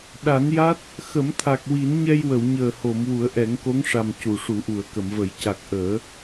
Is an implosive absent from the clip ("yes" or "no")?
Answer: no